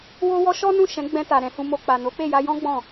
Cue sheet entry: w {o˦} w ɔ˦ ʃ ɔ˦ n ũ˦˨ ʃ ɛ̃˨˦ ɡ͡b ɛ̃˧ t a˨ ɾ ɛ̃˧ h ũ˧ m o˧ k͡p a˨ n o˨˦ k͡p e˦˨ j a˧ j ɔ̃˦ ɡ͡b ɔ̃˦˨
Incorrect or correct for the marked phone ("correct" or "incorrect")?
correct